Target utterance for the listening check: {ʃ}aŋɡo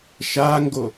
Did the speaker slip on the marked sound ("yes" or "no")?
no